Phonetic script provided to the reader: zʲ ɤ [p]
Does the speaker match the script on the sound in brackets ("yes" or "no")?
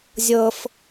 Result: no